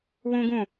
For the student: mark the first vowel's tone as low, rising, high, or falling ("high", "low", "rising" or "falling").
high